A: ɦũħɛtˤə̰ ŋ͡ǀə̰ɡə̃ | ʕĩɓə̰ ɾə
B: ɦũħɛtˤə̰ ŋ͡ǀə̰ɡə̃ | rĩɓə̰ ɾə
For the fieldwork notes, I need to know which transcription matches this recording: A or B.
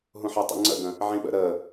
A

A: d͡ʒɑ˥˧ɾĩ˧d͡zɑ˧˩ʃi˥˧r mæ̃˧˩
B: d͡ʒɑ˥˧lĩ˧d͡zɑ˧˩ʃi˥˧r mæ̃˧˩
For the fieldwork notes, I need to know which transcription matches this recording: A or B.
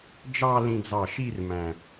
B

